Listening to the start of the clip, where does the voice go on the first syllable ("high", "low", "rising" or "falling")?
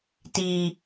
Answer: low